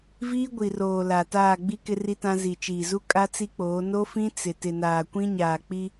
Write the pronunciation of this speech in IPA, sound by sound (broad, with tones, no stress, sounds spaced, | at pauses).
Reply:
v iː˦ ɡʷ i˨ r oː˨ l a˨ t aː˦˨ ɡ͡b i˦ k ɪ˦ r i˦ t ã˦ z i˨ t͡ʃ iː˨ z u˦ kʼ a˦ t͡s i˦ k͡p oː˨˦ n o˦ f ĩ˦ t͡s ɪ˨ t ɪ˨ n aː˨ kʷ ĩ˦ ɲ aː˨ k͡p i˦